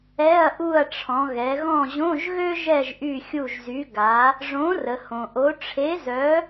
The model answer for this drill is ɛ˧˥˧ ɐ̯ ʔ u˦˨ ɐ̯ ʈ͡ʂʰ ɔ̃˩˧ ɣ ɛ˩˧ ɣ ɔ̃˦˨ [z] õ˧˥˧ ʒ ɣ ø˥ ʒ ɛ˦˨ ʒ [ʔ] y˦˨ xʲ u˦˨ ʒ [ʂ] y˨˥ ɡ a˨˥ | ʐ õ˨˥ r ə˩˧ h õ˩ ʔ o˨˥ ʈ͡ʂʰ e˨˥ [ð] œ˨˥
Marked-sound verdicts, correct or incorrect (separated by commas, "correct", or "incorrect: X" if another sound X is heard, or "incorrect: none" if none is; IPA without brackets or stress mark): incorrect: ʑ, correct, incorrect: z, incorrect: z